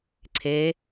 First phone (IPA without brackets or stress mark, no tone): ǀʰ